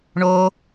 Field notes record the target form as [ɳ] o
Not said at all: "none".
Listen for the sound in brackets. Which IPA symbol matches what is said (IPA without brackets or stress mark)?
ɳ